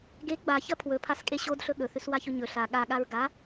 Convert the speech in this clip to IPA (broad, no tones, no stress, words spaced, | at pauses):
ɡe ɡ͡baçɐ pʰwɵpʰaskʼe ɕodɬɵ ɠɵθʉswaçɵ ɲɵ ɬa ɠaɠaɹ ɡa